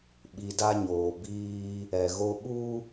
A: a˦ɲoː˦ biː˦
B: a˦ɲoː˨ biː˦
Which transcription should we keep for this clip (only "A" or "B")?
B